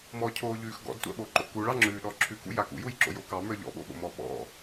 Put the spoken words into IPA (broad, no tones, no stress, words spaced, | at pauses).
mɔcʰoːʎʉːx ɡɔ̰dtʷa̰ ɓoǃo̰ kuɭɑŋ͡ǁʉːɗɔ ǁʰʉkṵja kṵjujǁo̰jo kɑmə˞ ʎɔ̰ɓo̰ɓo̰mɔ ɓɔ̰